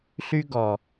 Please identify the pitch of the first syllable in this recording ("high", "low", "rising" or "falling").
high